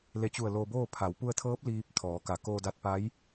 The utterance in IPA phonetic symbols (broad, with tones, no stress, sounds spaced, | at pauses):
l e˧˩ t͡ɕ u˧˩ ə̯ l oː˧ b oː˥˨ pʰ a˩˧ w p u˧ ə̯ t̪ʰ ɤː˧˥ p̚ l iː˧ p̚ t̪ʰ ɔː˩˧ k a˧˩ k oː˧ d a˧ t̚ p a˧˥ j